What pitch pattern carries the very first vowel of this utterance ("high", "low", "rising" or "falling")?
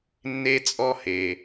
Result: high